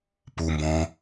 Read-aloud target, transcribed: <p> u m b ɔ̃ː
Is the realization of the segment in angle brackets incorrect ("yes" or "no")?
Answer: no